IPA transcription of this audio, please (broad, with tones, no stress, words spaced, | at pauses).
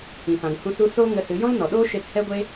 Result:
ĩ˨fã˨ŋhũ˧su˧ so˦ ŋə˧sɨ˨˦ jɔ̃˦lnɔ˨ɗoː˦ʃe˧p hɛ˦ɡʷe˦